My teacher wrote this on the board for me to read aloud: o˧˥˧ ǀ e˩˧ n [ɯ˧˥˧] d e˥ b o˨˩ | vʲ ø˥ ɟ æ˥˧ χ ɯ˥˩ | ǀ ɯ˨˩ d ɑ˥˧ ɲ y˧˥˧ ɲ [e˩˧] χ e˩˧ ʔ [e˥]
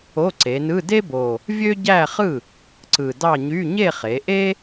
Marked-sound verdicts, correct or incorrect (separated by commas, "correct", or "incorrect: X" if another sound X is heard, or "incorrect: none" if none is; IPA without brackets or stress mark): correct, incorrect: e˥˧, correct